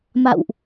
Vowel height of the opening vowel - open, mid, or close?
open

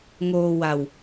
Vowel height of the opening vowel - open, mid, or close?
mid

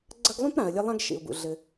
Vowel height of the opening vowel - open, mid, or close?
open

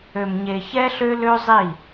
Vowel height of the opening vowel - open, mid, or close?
mid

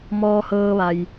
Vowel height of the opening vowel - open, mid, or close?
mid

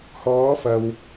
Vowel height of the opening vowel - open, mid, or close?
mid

